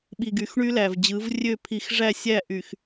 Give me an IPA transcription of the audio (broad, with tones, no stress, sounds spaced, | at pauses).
ɓ i˨ ɡ y˨˦ x ɳ y˦ l æ˨ v d͡ʑ ɯ˨˦ v rʲ ø˦˨ pʰ i˨ x ʐ æ˦˨ sʲ æ˦˨ ʔ y˨ x